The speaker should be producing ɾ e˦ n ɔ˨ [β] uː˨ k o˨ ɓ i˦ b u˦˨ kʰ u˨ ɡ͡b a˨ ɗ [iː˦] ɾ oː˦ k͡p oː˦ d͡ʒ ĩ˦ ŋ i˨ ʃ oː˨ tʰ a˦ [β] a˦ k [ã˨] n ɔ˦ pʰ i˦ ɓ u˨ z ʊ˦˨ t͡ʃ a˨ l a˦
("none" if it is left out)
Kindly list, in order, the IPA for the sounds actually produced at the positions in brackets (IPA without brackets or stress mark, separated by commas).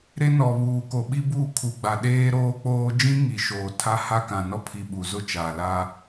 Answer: β, eː˦, h, ã˨